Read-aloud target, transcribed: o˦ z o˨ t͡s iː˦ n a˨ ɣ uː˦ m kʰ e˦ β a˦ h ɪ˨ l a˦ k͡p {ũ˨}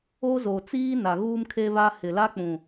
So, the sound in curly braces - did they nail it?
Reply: yes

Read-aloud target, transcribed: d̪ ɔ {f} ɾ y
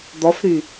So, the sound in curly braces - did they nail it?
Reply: yes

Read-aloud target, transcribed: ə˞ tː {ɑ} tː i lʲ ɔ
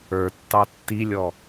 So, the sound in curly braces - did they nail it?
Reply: yes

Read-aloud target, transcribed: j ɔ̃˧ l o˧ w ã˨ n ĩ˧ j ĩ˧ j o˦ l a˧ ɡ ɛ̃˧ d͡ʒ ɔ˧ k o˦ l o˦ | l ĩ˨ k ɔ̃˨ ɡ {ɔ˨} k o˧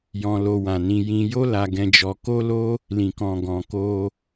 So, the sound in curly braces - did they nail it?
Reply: no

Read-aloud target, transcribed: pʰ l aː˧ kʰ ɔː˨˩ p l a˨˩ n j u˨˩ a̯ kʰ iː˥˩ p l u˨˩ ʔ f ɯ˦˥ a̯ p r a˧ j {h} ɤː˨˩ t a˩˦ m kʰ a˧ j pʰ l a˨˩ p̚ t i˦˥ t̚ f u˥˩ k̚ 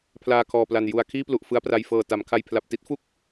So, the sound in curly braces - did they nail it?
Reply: no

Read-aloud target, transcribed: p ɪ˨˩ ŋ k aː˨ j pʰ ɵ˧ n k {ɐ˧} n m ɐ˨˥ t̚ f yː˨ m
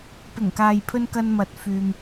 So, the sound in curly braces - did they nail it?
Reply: yes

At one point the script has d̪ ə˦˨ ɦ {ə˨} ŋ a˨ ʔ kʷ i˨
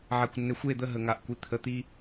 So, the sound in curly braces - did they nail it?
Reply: yes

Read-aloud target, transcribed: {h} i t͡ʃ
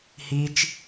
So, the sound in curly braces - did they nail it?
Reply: yes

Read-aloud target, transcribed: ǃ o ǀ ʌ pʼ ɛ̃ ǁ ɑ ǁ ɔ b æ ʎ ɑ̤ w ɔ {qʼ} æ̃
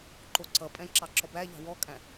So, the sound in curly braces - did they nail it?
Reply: no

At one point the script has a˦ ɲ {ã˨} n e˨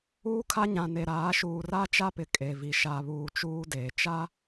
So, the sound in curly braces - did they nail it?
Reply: yes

